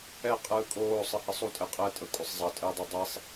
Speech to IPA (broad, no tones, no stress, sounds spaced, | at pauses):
ɛ qʼ ɯː kʼ oː sˤ ɯ h ɘ sˤ u tʼ ɛ qʼ ɘː tʼ ə kʷʼ ɘ sˤ zˤ ʌ tʼ ɘː dˤ o dˤ e sˤ